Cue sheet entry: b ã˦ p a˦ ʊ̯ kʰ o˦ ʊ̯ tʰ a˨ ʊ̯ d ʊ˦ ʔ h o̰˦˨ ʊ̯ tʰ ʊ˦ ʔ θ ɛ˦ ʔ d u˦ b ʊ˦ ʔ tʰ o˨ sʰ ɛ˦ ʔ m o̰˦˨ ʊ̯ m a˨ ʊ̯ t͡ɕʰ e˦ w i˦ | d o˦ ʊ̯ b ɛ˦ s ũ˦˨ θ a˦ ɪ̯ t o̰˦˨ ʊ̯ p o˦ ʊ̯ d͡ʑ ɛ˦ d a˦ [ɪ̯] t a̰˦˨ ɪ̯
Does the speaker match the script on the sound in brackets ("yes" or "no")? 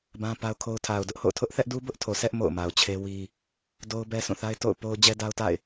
no